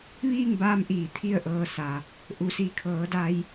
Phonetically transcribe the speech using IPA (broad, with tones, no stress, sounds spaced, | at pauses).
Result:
ʋ iː˥˨ ŋ b aː˧ m ʔ iː˧˩ t̪ʰ i˥˨ ə̯ ʔ ɤː˧ s a˩ | ʔ u˩˧ s i˧˩ kʰ ɤː˩˧ d a˧ j